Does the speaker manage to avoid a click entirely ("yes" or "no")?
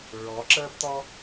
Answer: no